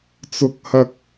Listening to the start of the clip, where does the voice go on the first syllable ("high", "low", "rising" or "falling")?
high